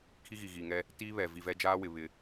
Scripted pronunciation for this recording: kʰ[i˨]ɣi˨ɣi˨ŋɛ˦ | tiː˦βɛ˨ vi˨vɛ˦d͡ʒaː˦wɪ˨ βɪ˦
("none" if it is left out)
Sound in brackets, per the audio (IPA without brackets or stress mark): i˦